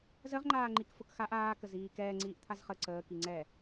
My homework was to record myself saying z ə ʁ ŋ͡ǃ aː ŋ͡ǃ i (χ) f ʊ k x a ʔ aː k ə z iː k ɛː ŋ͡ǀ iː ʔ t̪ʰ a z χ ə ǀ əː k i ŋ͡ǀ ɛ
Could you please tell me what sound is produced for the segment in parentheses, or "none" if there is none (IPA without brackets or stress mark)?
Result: k